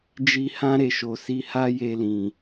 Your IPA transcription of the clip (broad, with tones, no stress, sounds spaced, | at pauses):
d͡ʒ i˧ h ã˦ ɾ e˦˨ ʃ o˨ s i˨˦ h a˦ j e˧ l ĩ˨